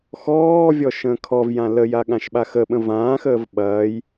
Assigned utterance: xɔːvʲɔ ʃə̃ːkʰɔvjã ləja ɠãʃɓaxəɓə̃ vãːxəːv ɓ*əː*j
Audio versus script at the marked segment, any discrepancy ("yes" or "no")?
yes